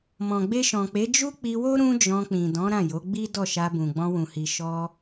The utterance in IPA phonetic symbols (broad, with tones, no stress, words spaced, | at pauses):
mɔ̃˨ɡ͡be˧ʃɔ̃˨k͡pe˨˦ d͡ʒu˦k͡pi˧wo˦ ɾũ˦d͡ʒɔ̃˧k͡pĩ˨ dɔ̃˨˦ ɾã˦˨jo˨˦ɡ͡bi˦dɔ˦˨ ʃa˧bũ˨ ɡ͡bɔ̃˧wũ˨hi˨ ʃɔ˧